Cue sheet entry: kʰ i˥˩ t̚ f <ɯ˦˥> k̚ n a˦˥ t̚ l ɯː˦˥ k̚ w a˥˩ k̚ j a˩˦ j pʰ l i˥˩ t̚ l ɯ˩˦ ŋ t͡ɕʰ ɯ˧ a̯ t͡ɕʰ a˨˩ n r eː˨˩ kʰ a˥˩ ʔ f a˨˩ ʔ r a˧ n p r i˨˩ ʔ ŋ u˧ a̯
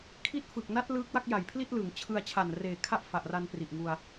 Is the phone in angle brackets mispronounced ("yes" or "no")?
yes